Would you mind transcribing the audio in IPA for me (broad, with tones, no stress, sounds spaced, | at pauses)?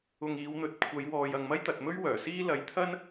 ʊ˨ ŋ iː˨˧ w n̪ ɵ˨˥ t̚ kʷʰ ɐ˨˧ j w ɔː˨ j ɐ˨ ŋ m ɐ˥ j t̪ ɐ˨ t̚ m ɵ˥ ɥ w œː˨˩ s iː˥ l ɐ˨˧ j t̪ʰ ɐ˥ n